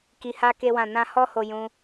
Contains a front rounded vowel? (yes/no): no